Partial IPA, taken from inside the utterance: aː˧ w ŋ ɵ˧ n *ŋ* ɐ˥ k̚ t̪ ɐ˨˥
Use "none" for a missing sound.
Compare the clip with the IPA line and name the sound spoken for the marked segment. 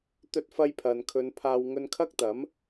kʰ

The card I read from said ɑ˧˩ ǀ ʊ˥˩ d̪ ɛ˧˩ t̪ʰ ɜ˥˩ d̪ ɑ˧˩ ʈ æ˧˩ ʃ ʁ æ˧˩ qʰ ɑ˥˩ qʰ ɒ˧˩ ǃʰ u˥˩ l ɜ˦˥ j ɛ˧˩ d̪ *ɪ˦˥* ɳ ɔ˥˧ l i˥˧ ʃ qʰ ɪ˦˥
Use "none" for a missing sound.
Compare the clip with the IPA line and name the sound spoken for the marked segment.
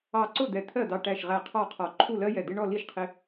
ɪ˦˥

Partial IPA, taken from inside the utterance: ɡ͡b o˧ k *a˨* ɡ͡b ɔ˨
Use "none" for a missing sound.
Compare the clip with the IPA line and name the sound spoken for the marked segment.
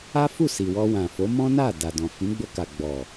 a˨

